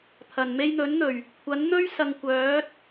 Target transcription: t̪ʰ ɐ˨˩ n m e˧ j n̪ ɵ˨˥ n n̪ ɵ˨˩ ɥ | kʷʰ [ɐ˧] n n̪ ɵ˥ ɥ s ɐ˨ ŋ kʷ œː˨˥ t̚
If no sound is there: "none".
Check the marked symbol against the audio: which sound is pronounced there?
ɐ˨˥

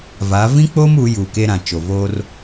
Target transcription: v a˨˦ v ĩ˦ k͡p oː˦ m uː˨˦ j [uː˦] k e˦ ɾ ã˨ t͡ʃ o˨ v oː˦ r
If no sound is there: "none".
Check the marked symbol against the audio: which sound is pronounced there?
uː˨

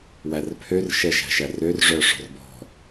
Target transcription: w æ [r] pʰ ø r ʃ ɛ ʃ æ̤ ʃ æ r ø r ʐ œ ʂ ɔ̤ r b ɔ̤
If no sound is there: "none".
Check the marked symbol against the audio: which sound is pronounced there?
r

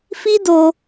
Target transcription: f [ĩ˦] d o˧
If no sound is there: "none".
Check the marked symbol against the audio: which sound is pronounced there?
i˦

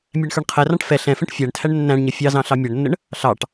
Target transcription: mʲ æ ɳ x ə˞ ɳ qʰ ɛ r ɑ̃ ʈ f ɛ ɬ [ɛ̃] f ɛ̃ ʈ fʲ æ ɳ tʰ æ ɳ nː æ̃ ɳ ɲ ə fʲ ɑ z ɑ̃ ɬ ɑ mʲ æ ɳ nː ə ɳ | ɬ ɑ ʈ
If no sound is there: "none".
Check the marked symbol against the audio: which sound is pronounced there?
ɛ̃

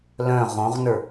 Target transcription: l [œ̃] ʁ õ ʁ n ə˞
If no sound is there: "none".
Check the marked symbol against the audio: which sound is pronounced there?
œ̃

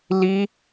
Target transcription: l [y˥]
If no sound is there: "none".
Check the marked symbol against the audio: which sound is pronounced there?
i˥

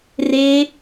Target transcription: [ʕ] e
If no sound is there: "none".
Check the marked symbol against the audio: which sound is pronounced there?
r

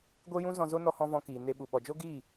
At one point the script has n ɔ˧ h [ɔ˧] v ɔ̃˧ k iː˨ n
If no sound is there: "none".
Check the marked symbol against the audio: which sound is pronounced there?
ɔ̃˧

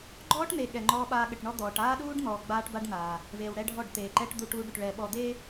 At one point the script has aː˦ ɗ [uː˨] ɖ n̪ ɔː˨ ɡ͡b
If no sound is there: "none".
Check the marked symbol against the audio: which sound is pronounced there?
uː˦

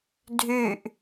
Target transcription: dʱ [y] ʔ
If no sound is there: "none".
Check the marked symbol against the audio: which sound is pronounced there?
y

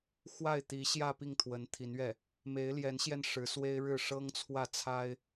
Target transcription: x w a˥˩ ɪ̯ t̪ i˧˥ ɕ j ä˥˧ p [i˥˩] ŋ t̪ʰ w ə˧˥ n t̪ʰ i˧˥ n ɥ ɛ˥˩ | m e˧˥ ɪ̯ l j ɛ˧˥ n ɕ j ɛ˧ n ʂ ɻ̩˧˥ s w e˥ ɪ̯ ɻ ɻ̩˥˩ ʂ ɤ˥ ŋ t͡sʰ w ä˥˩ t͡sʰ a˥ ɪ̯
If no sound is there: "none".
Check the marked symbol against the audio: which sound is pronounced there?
i˥˩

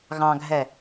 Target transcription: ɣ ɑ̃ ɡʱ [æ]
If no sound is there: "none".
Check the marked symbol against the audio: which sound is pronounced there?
ɛ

